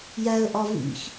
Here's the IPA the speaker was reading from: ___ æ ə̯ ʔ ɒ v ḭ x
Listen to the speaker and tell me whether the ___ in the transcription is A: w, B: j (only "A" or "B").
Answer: B